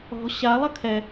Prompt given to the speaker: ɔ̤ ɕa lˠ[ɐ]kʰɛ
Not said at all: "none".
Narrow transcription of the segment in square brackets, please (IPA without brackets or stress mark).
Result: ɐ